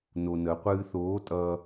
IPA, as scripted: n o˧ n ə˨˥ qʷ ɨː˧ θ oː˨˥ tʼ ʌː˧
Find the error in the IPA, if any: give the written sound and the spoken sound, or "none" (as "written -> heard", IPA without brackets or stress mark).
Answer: none